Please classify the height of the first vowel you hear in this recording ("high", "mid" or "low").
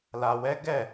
low